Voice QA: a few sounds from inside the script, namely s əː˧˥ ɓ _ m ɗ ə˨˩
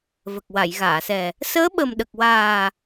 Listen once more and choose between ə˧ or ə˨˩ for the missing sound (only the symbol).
ə˨˩